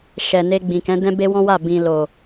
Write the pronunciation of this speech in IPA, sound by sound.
ʃ ɛ˨ n e˧ ɡ͡b ĩ˨ k ɛ̃˨˦ d ɛ̃˦ b e˦ w ɔ̃˦ w a˦˨ b ĩ˨ l o˨

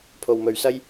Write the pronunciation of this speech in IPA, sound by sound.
pʰ o˨ w m ɵ˨ ɥ s ɐ˥ j

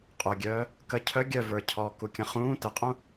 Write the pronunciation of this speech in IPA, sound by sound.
qʼ œ ɡʲ œː | k ə cʰ œ ɡʲ œ v ə˞ cʰ ɔː k u kʲ ə̃ χ ũː t ə qʼ ũ

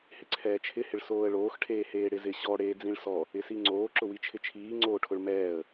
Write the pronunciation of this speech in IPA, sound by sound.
h ɪ ǀʰ ɛː t͡ʃʰ ɪ h ɪ ɭ s oː ə̯ ɭ oː x ʈʰ eː h eː ɽ ɪ z ɪ ɕ ɔ ɽ eː d͡z ĩ ɭ s ɔ | ɪ s i ŋ͡ǀ oː ǁ ʊ w i t͡ʃʰ ɪ t͡ʃʰ iː ŋ͡ǀ oː ʈʰ ʊ ɭ m ɛː ə̯

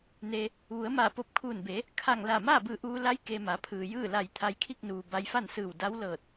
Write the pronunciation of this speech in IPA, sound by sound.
n e˧ | ʋ u˩˧ ə̯ m aː˧˩ p o˧ p̚ kʰ uː˧˩ n b e˩˧ | kʰ a˧˩ ŋ l aː˧˩ m aː˥˨ b ɯː˧˩ ʔ uː˧ l a˧˥ j k e˧ m a˩˧ pʰ ɯː˩ j ɯː˥˨ l a˧˩ j t̪ʰ a˧ j kʰ i˥˨ k̚ n uː˩ b a˧ j f a˥˨ n s ɯː˧˩ w d a˧˥ w l ɤː˧˩ t̚

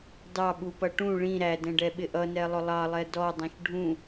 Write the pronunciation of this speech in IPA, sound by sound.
d ɑ ɓ u p ʌ ʈ ũ ɭ ĩ ɾ æ d ɛ̃ ɖ ɛ ɓ ɪ ʔ ʌ n ɛ lˠ ʊ lˠ ɑ lˠ ɛ d ɔ dˤ ɛ̃ ʃ ɖʱ ũ

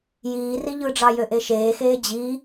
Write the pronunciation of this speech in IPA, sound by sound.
j iː r i ʎ ɯ ɖ͡ʐ ɑ j ø ʔ e ʃ eː x eː d͡ʑ i

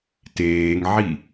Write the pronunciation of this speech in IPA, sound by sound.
t eː ŋ ʕ i

